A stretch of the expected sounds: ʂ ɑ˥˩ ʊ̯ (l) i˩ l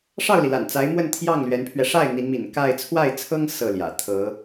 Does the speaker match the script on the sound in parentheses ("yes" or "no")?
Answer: yes